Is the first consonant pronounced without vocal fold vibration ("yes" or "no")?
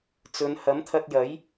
yes